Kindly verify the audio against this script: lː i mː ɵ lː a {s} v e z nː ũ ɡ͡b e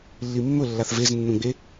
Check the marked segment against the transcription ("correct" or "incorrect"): incorrect